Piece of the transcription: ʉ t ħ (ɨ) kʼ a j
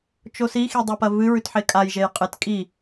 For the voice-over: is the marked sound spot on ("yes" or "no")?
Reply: no